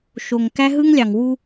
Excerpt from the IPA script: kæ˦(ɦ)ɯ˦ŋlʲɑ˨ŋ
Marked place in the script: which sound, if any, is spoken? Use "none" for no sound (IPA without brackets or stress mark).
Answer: ɦ